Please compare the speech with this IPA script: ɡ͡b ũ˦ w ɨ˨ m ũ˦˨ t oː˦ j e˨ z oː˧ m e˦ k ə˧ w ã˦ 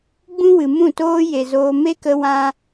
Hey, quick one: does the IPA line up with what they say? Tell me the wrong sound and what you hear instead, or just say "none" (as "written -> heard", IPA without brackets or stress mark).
none